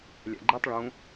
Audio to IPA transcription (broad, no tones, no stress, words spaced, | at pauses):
lʲæ̰ɡ͡ǃetˤ ɭũ